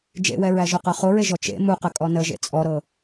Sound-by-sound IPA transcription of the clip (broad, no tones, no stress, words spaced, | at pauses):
d͡ʒḛwɛɹæʒo qɤχoɹeʒɔ t͡ʃḛ muqə kʼɔnəʒḛ t͡sʼɔɾɤ